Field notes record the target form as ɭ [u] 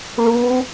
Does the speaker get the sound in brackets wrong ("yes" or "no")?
no